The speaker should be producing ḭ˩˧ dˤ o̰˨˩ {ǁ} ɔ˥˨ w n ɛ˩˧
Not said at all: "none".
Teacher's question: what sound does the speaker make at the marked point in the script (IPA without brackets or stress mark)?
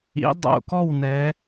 k